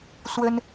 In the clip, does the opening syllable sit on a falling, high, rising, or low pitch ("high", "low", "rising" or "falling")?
high